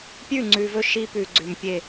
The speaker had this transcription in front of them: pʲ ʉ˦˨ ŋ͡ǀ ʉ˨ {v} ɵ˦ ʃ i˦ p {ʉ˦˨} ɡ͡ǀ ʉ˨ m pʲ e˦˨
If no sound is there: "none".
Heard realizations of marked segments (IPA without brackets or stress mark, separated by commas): v, ʉ˨